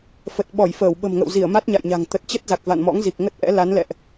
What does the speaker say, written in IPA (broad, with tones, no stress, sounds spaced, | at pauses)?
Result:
f ə˨˩ t̚ ɓ ɔ˧˩ j f əː˧˩ w ɓ ə̤˨˩ m ŋ ə̰˧˨ w z i˧˩ ə̯ m a˦˥ t̚ ɲ a̰˧˨ j ɲ a̤˨˩ ŋ t̪ ə˨˩ t̚ t͡ɕ ə˦˥ t̚ z a˨˩ k̚ v a̰˧˨ n m ɔ̰˧˥ ŋ z i˨˩ k̚ ŋ ə˦˥ t̚ ʔ ɛ̰˧˥ l a˨˦ n l ɛ̰˧˨ ʔ